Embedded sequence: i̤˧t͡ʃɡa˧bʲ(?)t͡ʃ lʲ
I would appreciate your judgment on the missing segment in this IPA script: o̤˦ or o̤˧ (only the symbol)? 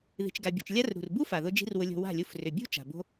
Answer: o̤˧